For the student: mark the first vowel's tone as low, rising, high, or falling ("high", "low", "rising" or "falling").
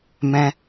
high